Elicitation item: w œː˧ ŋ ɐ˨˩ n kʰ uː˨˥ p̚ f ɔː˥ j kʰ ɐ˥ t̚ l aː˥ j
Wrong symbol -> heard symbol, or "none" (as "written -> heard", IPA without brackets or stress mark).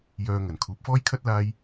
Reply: w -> j